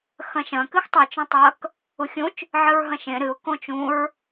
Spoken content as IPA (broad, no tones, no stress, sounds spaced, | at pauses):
x ɐ̃ ʃ ɐ̃ k ɨ x tˤ ɐ t͡ʃ õ tˤ ɐ k | u xʲ ũ t͡ʃ | ʕ ɨ ɹ ɦ ɐ̃ ʃ ẽ ɾ ɨ ʊ̯ k õ t͡ʃ ũ ɹ